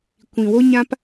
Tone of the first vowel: low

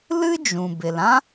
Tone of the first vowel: high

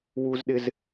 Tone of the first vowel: high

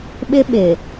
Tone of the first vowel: high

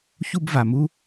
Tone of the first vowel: high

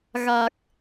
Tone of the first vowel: low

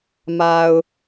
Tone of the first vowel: low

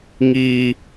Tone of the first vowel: high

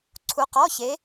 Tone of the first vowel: rising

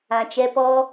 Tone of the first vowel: low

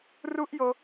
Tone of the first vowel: high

